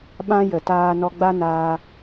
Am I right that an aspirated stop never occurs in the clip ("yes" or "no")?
yes